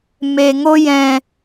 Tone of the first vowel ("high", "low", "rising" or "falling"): low